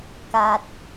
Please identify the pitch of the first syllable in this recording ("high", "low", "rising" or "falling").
low